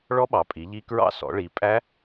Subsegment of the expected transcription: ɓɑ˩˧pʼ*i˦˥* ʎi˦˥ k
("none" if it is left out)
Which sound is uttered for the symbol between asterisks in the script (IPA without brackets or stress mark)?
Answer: i˩˧